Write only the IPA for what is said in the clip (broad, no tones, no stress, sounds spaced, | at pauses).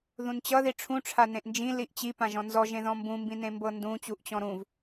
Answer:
ð ũ n t͡ɕ ʌ ð i ʈ͡ʂʰ ũ ʈ͡ʂʰ a n ẽ ʔ n d͡ʒ ĩ l i ʔ t͡ɕ i p ã ʒ ɔ̃ n z ɔ ʒ ẽ ð ɔ̃ m b ũ m b ĩ n ẽ m b ɤ n d ũ t͡ɕ u ʔ t͡ɕ ɔ̃ ɾ ũ v